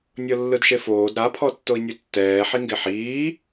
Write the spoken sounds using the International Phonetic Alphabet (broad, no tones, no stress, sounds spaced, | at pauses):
nʲ ɤ lː ɯ d ʃ e f oː d ɾ a pʰ ɔ tː o i̯ nʲ ɯ tː ɛː ħ i ŋ ɡ e ħ iː